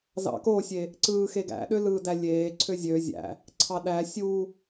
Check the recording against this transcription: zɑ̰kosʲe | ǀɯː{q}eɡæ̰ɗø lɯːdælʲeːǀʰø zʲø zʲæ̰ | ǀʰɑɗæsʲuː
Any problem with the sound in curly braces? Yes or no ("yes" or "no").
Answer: yes